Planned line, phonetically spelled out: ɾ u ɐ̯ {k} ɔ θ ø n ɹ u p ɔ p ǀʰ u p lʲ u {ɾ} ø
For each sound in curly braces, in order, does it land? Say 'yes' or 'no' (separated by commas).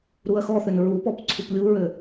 no, no